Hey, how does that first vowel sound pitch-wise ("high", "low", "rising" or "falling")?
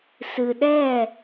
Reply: low